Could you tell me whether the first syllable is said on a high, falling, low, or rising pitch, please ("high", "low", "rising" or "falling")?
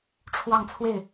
falling